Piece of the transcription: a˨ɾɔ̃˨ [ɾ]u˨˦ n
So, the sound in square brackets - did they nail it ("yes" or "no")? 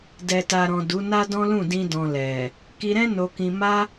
no